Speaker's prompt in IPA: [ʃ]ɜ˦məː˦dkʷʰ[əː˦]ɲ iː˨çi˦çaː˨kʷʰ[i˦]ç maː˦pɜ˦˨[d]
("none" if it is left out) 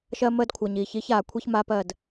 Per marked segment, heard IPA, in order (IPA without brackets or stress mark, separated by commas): ʃ, əː˨, i˦, d